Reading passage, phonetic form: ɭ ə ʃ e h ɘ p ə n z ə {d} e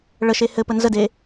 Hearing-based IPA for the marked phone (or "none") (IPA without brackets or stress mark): d